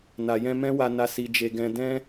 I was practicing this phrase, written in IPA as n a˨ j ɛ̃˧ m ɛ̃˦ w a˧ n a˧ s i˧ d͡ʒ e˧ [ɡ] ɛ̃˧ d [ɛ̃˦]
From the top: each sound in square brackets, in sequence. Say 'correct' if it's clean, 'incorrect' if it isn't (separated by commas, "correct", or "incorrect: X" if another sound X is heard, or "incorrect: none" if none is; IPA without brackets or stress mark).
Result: correct, correct